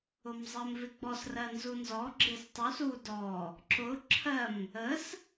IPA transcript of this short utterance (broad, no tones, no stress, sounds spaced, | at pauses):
ʊ m zˤ ɜ m v ɪ ɡ͡b ɔ s r ɜ n z u n z ɔ ɡ͡ǁ ɪ s tˤ u s u d ɔ | ǁ ʊ ǁʰ ɜ m | ə s